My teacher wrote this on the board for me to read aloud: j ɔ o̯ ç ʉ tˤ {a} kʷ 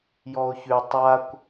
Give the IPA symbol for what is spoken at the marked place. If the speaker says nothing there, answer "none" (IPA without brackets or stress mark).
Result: a